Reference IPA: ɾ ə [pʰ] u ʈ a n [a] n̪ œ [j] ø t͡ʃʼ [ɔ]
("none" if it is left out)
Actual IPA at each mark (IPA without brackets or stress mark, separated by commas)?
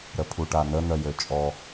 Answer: pʰ, ə, j, ɔ